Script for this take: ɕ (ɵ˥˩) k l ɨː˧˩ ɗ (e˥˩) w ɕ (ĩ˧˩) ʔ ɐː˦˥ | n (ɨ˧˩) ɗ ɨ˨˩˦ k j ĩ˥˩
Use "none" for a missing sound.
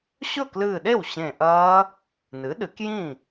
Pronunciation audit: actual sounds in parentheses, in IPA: ɵ˥˩, e˥˩, ẽ˧˩, ɨ˩˥

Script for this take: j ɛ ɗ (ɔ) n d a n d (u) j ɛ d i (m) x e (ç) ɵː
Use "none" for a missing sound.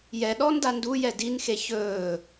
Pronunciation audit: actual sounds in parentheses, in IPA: ɔ, u, n, ç

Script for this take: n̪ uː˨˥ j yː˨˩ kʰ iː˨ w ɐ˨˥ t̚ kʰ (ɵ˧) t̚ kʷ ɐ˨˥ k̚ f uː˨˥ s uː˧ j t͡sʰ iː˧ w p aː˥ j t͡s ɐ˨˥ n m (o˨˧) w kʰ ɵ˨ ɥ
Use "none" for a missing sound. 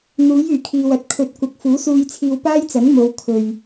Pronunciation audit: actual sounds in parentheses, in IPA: ɵ˨˥, o˨˧

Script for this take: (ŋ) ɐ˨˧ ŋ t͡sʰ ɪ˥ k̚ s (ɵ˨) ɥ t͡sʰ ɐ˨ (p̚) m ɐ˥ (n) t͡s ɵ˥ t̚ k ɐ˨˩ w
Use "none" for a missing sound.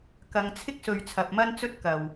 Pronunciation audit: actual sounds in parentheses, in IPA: k, ɵ˨, p̚, n

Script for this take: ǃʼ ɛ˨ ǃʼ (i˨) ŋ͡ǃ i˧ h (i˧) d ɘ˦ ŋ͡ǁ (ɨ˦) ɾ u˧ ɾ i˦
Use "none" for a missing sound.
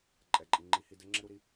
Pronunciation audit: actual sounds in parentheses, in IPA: i˨, i˧, ɛ˦

